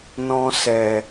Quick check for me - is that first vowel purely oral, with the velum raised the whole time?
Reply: no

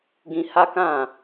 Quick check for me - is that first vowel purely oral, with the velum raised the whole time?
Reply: no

